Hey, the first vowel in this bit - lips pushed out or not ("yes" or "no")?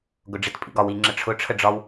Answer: yes